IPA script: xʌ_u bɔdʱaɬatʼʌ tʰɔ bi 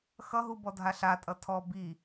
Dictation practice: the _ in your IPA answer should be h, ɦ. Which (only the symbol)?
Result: ɦ